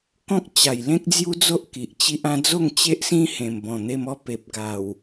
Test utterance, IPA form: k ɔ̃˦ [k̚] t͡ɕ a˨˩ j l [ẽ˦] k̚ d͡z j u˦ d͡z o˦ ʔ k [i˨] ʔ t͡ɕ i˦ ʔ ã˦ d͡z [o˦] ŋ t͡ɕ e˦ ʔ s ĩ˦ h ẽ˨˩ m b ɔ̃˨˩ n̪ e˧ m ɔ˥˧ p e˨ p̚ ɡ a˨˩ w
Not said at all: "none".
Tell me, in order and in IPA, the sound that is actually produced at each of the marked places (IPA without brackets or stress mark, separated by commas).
k̚, ẽ˦, i˨, o˥˧